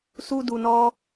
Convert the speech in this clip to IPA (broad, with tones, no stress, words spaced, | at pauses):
su˦du˧nɔ˦